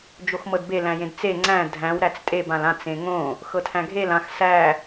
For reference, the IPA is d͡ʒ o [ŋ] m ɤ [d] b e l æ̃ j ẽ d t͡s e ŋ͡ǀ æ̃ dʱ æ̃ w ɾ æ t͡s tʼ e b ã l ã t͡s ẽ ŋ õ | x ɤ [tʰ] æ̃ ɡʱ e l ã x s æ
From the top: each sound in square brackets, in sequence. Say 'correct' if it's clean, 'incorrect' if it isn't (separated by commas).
incorrect, correct, correct